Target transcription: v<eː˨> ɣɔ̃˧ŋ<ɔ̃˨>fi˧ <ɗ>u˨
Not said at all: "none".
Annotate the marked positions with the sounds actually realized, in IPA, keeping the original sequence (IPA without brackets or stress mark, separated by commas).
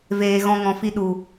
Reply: eː˨, ɔ̃˨, ɗ